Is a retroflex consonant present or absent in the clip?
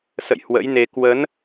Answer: absent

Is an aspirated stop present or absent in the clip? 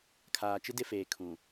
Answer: present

